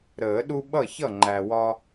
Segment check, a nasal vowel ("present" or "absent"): absent